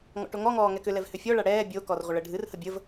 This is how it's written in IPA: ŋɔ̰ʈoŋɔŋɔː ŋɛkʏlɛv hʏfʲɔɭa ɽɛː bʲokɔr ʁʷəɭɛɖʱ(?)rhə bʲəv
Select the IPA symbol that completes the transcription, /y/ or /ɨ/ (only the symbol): ɨ